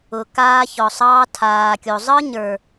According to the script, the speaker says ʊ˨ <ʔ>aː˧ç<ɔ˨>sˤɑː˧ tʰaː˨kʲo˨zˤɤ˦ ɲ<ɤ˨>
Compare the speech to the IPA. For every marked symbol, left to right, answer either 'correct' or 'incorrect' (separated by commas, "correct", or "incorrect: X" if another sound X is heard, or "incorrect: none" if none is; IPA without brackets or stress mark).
incorrect: k, correct, incorrect: ə˞˨